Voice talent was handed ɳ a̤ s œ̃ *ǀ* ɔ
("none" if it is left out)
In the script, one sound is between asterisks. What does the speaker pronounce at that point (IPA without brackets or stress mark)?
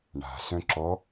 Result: ǁ